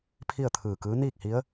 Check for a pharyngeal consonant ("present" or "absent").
absent